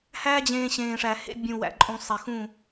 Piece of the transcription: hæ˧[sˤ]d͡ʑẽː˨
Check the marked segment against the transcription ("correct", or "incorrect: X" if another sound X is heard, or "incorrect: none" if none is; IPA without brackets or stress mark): incorrect: none